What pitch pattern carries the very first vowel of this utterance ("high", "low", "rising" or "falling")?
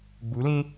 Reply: rising